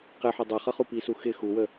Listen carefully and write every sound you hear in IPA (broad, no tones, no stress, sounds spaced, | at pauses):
q ɪ ħ ʊ dˤ ʌ χ ʌ χ u p i s u x ɪ x u w ə